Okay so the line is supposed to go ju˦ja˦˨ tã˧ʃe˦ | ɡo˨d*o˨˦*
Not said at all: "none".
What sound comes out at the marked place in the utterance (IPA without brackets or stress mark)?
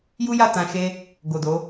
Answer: o˨˦